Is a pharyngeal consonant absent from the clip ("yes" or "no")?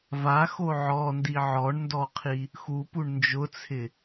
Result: no